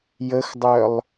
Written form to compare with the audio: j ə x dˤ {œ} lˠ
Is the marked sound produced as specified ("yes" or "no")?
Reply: yes